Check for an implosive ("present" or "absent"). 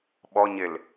present